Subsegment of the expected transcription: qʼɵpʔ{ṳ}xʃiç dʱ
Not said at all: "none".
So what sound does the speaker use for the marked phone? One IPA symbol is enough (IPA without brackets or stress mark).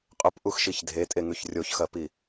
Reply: u